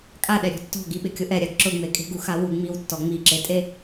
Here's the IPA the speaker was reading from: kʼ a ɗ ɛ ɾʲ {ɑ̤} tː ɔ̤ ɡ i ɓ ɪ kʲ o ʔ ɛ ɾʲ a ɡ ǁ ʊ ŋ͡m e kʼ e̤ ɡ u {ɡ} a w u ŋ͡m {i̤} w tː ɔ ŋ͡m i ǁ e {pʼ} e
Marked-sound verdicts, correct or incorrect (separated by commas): incorrect, incorrect, incorrect, incorrect